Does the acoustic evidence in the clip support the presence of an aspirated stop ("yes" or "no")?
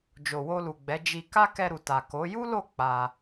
no